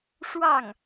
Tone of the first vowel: falling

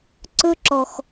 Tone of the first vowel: high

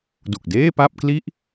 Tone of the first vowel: low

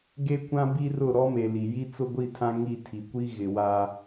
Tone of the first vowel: high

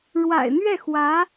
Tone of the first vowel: low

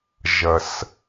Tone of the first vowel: low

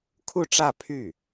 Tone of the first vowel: falling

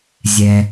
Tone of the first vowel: high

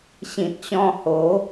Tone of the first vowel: low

